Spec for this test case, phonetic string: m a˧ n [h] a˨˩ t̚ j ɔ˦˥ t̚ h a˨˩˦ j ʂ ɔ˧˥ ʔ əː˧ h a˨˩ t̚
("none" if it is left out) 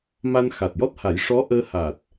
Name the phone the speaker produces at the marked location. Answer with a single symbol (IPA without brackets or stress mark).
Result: x